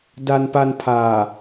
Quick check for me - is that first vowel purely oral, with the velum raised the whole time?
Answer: yes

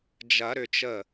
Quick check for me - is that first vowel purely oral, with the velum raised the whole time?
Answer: yes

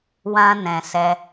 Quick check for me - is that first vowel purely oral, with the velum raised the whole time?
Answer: no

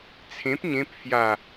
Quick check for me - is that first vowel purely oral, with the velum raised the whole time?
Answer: no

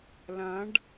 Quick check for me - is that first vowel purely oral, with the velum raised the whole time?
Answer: no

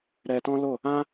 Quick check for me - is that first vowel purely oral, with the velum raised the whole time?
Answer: yes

